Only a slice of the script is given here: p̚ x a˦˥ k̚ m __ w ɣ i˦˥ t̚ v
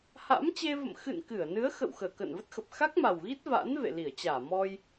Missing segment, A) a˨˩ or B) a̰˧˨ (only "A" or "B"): A